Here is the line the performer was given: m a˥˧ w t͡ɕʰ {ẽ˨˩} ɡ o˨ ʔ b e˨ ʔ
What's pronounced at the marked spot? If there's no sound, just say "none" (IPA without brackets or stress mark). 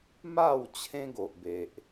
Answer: ẽ˦